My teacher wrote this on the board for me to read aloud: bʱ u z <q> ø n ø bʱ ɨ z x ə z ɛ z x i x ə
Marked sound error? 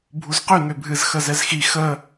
no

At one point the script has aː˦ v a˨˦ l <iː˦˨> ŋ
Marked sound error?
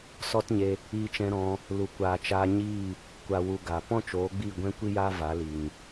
yes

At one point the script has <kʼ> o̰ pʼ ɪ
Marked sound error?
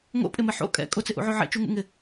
yes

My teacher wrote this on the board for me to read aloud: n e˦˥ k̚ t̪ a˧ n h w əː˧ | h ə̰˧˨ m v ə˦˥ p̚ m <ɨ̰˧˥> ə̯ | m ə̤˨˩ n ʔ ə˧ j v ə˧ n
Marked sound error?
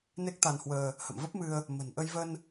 yes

